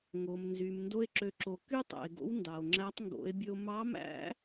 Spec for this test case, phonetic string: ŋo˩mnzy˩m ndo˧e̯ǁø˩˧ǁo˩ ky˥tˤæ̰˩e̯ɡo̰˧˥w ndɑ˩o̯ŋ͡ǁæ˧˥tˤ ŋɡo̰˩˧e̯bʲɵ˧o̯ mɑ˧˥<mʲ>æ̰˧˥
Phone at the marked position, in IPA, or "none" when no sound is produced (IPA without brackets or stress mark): m